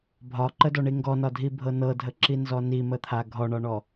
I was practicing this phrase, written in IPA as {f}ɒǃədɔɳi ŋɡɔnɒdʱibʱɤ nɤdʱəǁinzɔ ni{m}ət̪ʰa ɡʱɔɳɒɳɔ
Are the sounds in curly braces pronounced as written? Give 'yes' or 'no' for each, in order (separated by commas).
no, yes